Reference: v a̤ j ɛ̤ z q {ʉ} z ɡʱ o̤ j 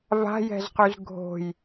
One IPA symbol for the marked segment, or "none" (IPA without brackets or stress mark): ʉ